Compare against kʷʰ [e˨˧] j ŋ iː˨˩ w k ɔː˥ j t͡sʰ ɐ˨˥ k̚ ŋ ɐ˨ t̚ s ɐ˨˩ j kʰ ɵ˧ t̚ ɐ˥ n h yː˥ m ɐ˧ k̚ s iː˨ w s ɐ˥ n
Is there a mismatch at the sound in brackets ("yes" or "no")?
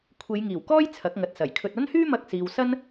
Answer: no